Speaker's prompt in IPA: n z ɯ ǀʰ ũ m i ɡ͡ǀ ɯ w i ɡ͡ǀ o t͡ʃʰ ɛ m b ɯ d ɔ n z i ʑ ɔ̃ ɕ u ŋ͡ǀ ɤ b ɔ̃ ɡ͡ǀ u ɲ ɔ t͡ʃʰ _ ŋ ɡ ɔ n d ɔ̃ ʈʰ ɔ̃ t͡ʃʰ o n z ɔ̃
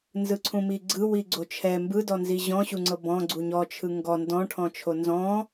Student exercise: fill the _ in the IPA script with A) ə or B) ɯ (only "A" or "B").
B